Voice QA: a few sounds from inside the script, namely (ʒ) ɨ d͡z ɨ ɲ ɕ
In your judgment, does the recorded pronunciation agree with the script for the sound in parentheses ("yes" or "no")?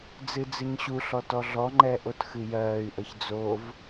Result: no